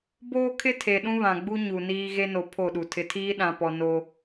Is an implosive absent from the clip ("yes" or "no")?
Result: no